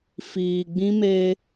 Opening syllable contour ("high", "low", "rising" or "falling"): low